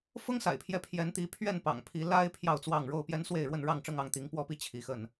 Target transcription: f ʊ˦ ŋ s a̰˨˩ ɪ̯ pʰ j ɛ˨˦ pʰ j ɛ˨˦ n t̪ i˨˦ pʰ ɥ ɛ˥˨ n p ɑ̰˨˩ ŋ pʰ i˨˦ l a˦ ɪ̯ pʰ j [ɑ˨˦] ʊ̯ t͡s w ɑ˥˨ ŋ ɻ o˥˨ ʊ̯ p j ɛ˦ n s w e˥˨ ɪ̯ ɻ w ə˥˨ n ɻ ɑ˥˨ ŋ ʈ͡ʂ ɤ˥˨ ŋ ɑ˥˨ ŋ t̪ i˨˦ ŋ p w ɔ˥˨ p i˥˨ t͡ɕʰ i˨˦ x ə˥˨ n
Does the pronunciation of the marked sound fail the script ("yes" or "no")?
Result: yes